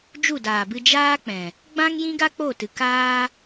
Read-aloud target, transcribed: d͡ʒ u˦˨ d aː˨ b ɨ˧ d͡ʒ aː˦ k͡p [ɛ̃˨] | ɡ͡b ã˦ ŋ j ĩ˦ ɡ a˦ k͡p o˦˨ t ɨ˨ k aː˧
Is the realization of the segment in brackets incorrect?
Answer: no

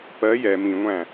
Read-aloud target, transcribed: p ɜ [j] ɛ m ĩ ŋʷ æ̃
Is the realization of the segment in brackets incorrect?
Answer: no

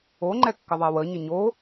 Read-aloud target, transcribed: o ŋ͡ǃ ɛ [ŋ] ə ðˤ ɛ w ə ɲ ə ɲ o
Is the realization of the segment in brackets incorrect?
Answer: yes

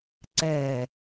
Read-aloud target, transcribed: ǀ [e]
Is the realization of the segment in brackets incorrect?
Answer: yes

